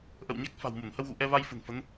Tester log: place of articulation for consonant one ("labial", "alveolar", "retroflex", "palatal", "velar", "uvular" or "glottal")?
glottal